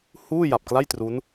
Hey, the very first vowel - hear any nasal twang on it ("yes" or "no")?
no